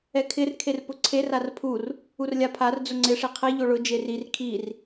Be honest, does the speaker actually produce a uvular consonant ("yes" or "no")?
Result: yes